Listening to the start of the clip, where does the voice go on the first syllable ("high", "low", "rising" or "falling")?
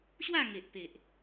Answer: falling